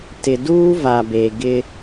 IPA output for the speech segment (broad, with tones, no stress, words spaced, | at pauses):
tɪ˨duː˦ va˨be˨ ɡɪ˦